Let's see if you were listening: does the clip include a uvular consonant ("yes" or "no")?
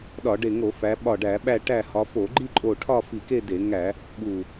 no